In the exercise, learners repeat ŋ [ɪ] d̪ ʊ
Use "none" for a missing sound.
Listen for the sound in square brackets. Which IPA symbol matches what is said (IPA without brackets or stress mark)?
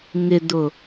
ɪ